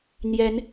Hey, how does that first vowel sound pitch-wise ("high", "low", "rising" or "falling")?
rising